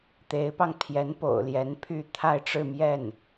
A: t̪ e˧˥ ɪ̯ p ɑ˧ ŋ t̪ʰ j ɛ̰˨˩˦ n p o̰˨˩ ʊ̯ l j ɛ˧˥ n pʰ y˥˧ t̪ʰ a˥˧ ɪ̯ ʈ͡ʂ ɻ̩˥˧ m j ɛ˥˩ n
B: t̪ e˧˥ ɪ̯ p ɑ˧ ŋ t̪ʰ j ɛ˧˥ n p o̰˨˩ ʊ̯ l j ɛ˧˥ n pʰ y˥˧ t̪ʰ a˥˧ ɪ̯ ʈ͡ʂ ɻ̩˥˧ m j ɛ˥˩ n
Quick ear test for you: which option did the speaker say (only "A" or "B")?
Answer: B